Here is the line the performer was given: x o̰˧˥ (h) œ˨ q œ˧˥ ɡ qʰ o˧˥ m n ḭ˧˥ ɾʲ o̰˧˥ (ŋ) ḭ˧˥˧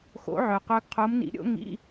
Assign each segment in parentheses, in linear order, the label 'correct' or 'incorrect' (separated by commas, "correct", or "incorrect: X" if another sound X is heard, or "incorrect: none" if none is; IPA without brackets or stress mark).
incorrect: ʕ, correct